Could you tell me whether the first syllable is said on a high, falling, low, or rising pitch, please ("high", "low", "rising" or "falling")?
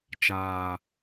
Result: low